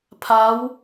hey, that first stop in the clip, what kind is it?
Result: aspirated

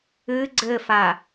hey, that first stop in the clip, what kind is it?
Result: click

